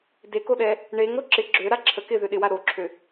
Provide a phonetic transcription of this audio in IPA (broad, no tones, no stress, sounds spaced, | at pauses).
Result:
d e k o ɗ ɛ | ɳ e ŋ ɾ o ǁ ɪ ɡ͡ǁ ø ɾ a ǁʰ ə k ɪ ð ø ɗ ɪ w a ɾ o ǁʰ ø